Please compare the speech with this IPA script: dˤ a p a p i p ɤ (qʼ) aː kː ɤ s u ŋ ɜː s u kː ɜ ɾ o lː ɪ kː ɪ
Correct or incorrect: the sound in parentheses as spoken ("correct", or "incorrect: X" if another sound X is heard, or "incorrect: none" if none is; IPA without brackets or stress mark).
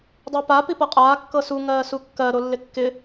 correct